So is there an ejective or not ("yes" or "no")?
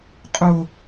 yes